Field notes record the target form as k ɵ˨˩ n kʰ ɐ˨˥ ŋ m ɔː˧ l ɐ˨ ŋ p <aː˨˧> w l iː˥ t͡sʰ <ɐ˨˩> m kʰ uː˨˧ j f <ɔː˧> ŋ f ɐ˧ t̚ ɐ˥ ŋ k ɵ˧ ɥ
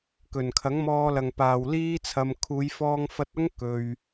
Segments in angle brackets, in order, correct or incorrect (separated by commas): incorrect, incorrect, correct